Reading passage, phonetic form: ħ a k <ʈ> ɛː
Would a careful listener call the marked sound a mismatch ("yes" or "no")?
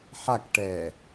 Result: no